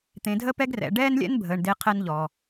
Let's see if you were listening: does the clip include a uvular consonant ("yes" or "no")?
yes